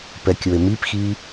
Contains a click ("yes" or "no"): no